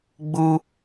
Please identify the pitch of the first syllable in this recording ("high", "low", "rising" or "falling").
high